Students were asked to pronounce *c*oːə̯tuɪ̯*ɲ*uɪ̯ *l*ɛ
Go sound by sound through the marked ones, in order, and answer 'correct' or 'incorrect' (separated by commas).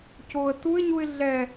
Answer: correct, correct, incorrect